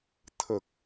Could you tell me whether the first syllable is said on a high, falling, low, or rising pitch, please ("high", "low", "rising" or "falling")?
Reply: low